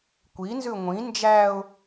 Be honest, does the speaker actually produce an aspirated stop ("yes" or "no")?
no